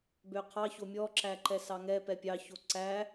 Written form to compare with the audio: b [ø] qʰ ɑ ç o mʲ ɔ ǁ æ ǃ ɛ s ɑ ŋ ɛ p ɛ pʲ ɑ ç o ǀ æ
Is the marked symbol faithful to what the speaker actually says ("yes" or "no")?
yes